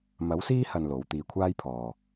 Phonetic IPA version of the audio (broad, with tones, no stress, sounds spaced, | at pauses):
m ɐ˨˥ w s iː˥ h ɐ˨ n l o˨˥ w t̪ iː˧ kʷʰ aː˥ j pʰ ɔː˨